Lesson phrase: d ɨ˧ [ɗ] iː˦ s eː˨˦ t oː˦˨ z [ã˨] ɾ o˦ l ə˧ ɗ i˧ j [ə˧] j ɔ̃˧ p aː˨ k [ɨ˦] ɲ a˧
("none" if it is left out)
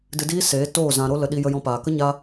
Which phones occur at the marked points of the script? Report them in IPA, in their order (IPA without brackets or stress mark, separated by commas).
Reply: d, ã˨, ə˧, ə˦